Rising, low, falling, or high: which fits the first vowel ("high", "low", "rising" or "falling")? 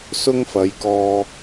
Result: high